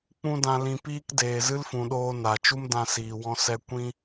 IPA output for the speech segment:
k͡p ũ˦ d ã˧ l ĩ˧ p iː˦ k d eː˨ z ɨ˦ l f ũ˨ ɗ oː˧ n a˨ t͡ʃ u˦ m d ã˧ s iː˨ w ɔ̃˧ s ɛ˦ kʷ ĩ˦

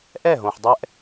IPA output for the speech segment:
ʔ ɛ˦˨ ɦ õ˨ ħ dˤ ɛ˦ ʔ

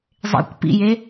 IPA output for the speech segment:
zˤ ḛ kʷ p ḭ j e

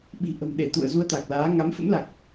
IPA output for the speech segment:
ɓ i̤˨˩ ʔ ə̤˨˩ m ɗ e˧˩ t̪ ṵ˧˨ ə̯ z u˧ ə̯ t̪ a˨˩ k̚ l aː˨˦ ŋ a˨˦ m f ə̰˧˥ m l a˨˩ k̚

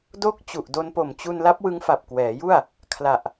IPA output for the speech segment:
d o˥˩ k̚ t͡ɕ u˨˩ ʔ d o˧ n p o˨˩ m t͡ɕ u˧ n l a˦˥ p̚ w ɯ˦˥ ŋ f a˨˩ p̚ k w ɛː˩˦ j u˥˩ a̯ | kʰ l a˨˩ ʔ

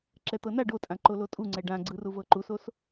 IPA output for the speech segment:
ǁ ɛ t̪ ɤ n a ɖ o tʼ ã ǃ o l o tʼ u ŋ͡ǀ ɛ ɖ ã ɡ͡ǀ ɯ r u v ɤ ǃ u s o s

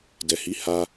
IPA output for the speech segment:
d ɛ˨ h i˨˦ h a˧

